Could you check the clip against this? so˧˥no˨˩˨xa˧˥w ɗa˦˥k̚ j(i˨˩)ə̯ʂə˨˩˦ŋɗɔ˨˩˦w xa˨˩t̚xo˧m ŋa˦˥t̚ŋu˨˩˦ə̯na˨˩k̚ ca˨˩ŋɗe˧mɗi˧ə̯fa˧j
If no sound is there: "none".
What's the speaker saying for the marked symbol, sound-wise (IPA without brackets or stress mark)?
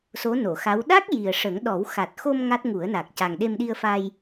i˨˩